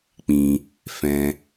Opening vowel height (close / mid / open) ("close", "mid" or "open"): close